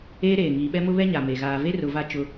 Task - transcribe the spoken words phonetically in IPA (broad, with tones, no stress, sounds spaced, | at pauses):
eː˦ ɾ eː˨ ŋ iː˨ ɓ ɛ˦ m ʊ˦ β ɛ˦ ɲ a˨ m e˨ ɣ aː˨ v e˦ r ʊ˨ v a˦˨ t͡ʃ ʊ˦